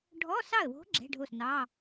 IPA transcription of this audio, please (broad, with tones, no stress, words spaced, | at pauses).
ɖʱɔ˧˥˧sɑ˥˩ə̯wo̤˧˥ ɡ͡ǁɛ̤˧˥˧ɖʱo˥˩snɑ˧˥˧